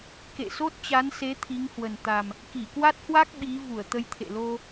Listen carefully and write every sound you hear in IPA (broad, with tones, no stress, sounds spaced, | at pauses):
k ḛ˧˨ s o˦˥ t̚ t͡ɕ a˨˦ n s e˨˦ t̪ʰ i˨˦ ŋ h w ə˨˩ n t̪ a˨˩ m | k i˧˩ k w a˦˥ t̚ h w a˦˥ k̚ ɓ i˨˦ v u˧˩ ə̯ t̪ ə˧ j t̪ʰ ḛ˧˨ l o˧